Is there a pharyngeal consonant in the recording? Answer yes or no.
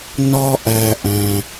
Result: no